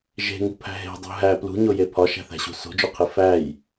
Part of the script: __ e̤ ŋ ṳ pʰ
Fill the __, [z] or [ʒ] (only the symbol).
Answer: ʒ